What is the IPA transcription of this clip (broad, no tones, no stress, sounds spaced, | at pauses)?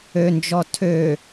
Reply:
ø n d͡ʒ ɔ tʰ ø